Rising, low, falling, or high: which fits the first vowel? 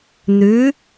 rising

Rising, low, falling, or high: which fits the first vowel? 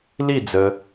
falling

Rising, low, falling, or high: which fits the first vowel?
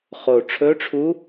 low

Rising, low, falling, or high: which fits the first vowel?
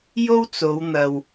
high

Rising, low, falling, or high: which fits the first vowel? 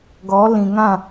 rising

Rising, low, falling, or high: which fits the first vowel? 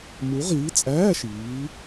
rising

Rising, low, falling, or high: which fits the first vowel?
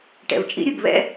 low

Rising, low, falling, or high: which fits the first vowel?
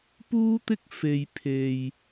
high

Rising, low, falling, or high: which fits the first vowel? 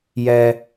high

